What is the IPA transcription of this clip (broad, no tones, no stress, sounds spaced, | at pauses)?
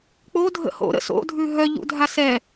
k͡p o dʱ ə̰ h o̰ ɾ ə̰ s o̰ dʱ ʉ ɦ œ ʎ ṵ dʱ a s ɛ